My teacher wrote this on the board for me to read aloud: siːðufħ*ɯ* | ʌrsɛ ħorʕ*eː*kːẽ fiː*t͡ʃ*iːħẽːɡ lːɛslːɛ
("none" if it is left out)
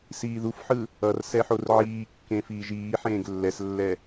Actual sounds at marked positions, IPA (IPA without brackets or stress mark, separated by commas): ɯ, iː, ʒ